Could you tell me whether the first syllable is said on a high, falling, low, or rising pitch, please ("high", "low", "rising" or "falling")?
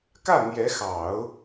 falling